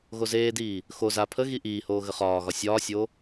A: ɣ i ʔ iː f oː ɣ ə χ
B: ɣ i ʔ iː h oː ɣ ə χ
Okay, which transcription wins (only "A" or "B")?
B